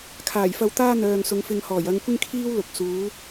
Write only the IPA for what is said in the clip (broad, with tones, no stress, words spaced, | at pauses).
kʰaː˨˩jfɐ˧wt̪aː˥ n̪œː˨ŋsʊ˨˧ŋfɪ˧ŋhɔː˨˩j ɐ˨˧ŋkʷɪ˥ŋkʰiː˥wlʊ˨k̚ suː˨˥